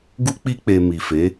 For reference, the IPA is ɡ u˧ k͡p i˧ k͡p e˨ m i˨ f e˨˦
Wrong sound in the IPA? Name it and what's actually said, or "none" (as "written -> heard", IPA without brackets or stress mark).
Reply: none